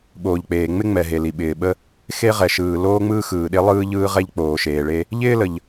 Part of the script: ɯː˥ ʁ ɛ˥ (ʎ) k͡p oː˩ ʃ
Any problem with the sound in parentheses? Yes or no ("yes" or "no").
no